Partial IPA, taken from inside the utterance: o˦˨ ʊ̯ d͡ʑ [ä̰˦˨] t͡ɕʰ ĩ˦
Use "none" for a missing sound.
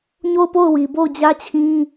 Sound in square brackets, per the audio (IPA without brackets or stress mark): ä˦